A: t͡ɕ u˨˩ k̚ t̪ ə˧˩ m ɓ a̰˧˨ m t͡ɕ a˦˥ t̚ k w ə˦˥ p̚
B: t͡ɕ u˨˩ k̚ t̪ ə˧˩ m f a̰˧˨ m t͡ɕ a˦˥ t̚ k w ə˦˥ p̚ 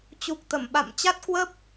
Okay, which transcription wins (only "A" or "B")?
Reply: A